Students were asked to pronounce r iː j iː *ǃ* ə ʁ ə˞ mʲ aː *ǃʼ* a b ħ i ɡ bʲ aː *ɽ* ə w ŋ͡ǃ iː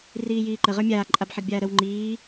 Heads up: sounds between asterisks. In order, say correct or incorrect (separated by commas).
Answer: correct, correct, incorrect